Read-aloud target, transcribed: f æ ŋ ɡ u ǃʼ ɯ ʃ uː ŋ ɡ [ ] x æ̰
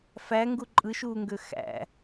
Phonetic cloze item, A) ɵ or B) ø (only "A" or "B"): B